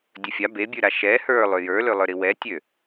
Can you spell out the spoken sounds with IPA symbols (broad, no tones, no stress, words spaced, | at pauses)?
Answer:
dʲɵfʲa bebʲʉɾa ʃɛ hə˞ lˠøjə˞ lølˠə˞ɾiwɛ tʲø